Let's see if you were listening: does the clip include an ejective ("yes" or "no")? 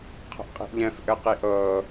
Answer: yes